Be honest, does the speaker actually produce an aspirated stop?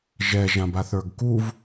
no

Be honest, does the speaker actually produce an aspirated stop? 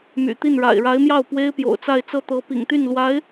no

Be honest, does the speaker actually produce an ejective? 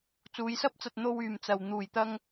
no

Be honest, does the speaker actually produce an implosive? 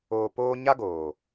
no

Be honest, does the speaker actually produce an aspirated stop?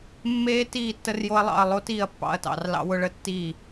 no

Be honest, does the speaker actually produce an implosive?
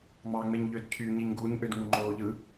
no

